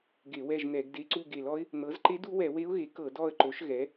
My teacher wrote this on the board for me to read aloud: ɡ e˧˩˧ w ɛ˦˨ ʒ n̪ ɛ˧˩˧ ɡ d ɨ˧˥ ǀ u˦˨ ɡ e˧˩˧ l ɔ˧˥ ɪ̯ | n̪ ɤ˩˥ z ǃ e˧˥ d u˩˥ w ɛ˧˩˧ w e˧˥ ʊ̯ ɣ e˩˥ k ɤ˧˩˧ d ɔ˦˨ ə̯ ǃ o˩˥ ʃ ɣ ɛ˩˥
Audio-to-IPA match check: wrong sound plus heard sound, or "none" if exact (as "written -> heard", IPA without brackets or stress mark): ɨ˧˥ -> e˧˥